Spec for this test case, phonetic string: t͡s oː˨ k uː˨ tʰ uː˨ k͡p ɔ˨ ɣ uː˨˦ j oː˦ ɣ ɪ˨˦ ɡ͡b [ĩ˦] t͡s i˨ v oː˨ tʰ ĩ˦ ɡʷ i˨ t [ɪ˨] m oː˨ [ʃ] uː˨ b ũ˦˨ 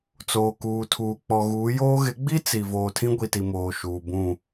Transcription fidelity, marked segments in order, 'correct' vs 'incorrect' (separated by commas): incorrect, incorrect, correct